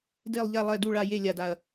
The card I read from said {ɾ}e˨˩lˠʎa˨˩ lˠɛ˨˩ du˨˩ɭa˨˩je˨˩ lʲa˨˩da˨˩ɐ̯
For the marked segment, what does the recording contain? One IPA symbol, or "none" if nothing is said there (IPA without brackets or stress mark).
d